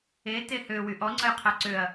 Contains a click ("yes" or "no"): yes